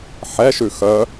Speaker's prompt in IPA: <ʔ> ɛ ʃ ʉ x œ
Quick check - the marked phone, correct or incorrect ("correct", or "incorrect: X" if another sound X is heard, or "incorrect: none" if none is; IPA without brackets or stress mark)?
incorrect: ħ